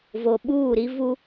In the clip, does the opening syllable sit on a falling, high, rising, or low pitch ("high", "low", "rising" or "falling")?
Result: low